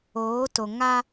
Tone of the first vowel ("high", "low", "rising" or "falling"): rising